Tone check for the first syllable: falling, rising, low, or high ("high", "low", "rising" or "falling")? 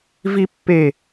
high